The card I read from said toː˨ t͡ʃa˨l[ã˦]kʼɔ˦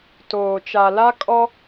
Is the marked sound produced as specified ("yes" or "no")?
no